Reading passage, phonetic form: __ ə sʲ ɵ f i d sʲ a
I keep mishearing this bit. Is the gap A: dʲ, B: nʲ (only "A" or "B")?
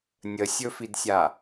B